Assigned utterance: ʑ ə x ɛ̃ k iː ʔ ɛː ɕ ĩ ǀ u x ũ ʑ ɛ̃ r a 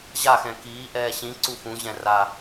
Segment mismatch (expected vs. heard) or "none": ə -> a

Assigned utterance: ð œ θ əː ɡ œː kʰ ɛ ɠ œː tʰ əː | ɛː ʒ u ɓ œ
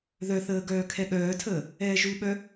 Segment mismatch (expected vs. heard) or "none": none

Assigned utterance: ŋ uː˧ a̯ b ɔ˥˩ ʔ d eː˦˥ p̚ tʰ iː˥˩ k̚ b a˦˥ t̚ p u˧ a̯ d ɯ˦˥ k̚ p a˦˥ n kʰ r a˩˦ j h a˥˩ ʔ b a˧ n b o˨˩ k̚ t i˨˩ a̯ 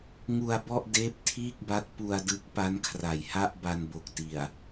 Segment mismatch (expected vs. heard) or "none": uː˧ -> u˧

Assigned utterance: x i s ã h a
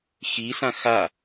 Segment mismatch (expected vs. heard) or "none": h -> x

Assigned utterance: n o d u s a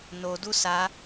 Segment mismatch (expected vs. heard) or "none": none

